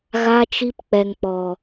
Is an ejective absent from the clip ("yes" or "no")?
yes